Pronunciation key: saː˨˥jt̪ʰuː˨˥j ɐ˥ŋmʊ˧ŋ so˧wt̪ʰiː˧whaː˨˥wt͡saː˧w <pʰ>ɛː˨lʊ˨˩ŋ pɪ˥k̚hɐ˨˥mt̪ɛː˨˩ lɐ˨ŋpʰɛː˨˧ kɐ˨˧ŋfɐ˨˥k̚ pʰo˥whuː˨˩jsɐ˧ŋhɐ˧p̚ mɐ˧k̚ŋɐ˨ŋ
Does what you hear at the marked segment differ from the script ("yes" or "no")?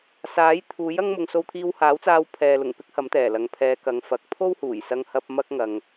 no